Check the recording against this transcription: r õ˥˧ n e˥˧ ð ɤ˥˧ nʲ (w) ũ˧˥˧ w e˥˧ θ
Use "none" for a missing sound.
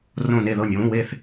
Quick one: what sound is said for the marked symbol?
w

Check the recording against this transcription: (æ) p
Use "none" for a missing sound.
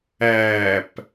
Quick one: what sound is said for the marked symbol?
æ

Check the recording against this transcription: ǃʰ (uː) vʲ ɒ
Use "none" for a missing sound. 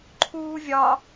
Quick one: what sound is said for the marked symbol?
uː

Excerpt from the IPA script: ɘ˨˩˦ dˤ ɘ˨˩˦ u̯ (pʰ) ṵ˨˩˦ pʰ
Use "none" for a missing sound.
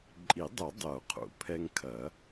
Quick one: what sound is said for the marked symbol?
qʰ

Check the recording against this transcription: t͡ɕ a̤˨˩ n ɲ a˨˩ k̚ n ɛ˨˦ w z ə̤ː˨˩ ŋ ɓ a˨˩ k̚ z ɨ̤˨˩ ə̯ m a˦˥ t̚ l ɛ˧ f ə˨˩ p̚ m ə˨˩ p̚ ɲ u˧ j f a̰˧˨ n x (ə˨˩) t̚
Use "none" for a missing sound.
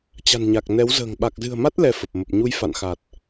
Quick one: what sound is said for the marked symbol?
a˨˩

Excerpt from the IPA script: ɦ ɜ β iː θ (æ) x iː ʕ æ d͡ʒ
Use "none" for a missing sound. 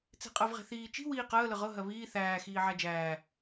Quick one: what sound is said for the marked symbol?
æː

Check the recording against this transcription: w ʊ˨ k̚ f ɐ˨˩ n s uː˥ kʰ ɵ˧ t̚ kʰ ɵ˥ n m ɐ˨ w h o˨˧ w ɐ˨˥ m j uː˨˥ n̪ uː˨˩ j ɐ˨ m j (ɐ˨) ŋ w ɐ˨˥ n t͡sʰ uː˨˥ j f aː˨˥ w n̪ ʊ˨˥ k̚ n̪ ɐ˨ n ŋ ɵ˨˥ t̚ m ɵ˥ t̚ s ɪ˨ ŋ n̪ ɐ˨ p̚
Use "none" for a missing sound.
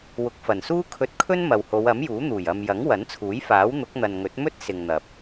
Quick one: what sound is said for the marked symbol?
ɐ˨˥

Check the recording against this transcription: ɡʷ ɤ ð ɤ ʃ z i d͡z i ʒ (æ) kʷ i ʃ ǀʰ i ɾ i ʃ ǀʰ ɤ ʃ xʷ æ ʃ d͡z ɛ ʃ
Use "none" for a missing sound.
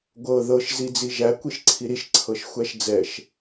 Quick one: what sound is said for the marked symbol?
æ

